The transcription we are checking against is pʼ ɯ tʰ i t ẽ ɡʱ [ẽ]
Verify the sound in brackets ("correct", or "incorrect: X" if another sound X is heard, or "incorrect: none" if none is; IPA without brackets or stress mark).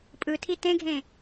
correct